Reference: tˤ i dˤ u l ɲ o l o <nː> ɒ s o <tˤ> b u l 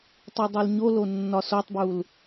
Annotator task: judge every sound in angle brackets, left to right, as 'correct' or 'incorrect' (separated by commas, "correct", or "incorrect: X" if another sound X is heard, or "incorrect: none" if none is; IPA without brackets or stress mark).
correct, correct